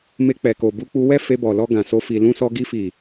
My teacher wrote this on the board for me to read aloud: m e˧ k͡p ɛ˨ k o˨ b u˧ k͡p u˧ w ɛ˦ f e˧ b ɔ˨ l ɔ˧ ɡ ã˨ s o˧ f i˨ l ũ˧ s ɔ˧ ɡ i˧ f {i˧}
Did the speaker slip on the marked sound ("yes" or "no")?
yes